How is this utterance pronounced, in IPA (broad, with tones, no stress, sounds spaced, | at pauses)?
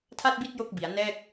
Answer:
tʰ a˥˩ t̚ b i˥˩ t̚ j o˥˩ k̚ b i˩˦ a̯ n ɛː˥˩ k̚